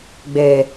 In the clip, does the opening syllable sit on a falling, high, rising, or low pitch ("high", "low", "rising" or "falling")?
low